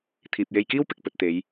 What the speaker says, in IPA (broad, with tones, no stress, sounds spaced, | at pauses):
t̪ʰ iː˨ p̚ j e˧ j k iː˥ w p ɪ˨ k̚ p ɵ˨ t̚ t̪ e˨˧ j